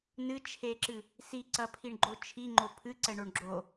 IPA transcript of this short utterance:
nɨt͡ʃʰeǁɨ | siǀɐpʰiɳɡ͡ǃo t͡ʃʰiŋ͡ǃo pʰɨǀɛɳoɳ ɡ͡ǁo

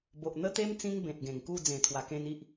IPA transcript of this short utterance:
bo˨ʔn̪ə˦t̪e˦m t͡sĩ˦ŋbẽ˨t̚ɡẽ˨˩ŋku˥˧ d͡zẽ˨˩t̪ʰwa˨˩kẽ˧n i˦ʔ

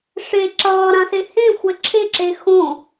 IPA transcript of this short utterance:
ʂe ǁʌːɾãse hẽxʷɛ ǁʰeǁe xõ

